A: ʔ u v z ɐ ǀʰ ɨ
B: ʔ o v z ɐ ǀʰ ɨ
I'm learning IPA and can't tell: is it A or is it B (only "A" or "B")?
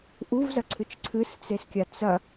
A